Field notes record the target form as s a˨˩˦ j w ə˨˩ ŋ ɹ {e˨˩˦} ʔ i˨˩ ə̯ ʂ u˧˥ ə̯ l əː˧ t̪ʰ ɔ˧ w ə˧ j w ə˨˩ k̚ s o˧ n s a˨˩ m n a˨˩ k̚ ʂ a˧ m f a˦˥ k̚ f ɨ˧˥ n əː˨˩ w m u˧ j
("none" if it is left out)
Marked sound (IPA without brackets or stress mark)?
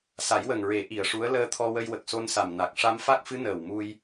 e˨˩˦